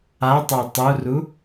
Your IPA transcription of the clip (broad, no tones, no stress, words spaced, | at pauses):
a tˤə˞tˤuru